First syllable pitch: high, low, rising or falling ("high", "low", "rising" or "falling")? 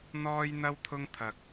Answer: high